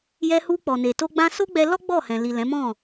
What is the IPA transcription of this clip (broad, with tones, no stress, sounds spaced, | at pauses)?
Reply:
j ɛ˧ h u˧ k͡p ɔ˨ n e˨ t o˧ ɡ͡b ã˧ s o˦ ɡ͡b ɛ˧ l ɔ˦ ɡ͡b ɔ˦˨ h ɛ̃˨ l i˨ l ɛ̃˨˦ m ɔ̃˦˨